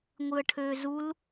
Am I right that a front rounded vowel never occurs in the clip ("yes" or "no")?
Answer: no